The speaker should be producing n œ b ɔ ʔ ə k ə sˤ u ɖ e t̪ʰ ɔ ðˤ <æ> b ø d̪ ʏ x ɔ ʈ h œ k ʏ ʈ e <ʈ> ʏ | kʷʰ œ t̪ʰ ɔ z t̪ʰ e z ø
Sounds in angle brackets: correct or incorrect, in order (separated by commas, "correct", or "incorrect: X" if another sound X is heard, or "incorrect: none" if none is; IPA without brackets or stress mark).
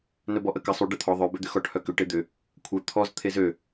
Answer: incorrect: œ, incorrect: d̪